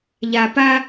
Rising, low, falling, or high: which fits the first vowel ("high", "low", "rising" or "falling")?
low